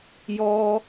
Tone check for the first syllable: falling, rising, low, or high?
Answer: high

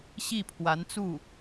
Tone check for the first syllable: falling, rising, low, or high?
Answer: falling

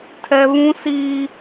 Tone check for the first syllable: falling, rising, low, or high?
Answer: low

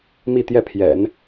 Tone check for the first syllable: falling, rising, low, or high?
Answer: falling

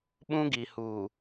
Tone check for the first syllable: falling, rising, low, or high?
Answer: high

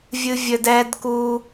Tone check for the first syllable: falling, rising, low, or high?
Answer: high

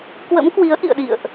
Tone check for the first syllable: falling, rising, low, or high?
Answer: rising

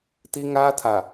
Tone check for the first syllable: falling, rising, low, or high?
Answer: high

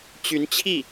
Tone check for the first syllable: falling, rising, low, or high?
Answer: rising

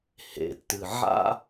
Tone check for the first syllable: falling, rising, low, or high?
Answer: low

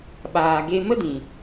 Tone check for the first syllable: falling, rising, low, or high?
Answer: low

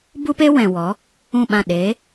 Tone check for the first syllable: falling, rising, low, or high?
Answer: high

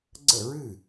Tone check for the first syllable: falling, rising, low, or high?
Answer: falling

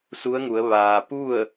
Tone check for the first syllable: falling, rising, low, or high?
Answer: rising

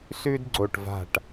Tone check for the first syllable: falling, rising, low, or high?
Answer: high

